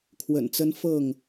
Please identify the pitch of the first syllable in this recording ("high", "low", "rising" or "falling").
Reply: low